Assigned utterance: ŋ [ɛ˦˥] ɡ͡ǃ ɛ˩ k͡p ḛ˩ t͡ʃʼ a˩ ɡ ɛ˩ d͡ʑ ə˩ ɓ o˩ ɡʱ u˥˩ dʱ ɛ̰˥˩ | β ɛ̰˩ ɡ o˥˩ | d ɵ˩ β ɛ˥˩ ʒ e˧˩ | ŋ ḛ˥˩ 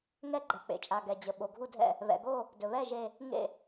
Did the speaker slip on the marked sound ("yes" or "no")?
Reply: no